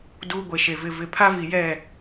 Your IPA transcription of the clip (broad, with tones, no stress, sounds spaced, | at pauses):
d uː˦ ɡʷ e˨ ʃ e˨ v ɪ˨ v ɪ˨ pʰ a˦ v i˨ j ɛ˦˨